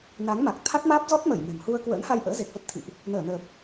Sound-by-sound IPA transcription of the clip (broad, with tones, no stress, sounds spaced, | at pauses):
n a˨˦ ŋ m a˨˩ k̚ t̪ʰ a˦˥ t̚ m aː˦˥ p̚ z ɔ˦˥ t̚ m ə˧˩ j m ɛ̤˨˩ m h u˧ ə̯ k w ə̰ː˧˥ n h a˧ j ʔ ə̰ː˧˥ z e˨˩ k̚ v ə˦˥ p̚ t̪ʰ ḭ˧˨ ʔ | n əː˧˩ n əː˨˩ p̚